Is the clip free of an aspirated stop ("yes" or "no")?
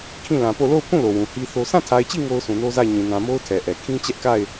no